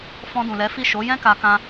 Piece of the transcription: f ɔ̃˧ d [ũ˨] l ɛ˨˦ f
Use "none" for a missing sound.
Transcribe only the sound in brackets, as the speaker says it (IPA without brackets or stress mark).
ũ˨